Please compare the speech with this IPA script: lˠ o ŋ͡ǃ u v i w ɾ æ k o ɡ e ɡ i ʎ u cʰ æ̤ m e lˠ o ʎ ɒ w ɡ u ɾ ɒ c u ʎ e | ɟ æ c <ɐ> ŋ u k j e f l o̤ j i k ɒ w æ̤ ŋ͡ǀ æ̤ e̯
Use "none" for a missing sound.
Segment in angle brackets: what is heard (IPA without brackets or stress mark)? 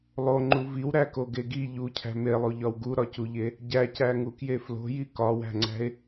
æ